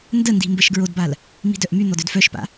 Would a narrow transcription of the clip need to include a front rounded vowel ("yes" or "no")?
yes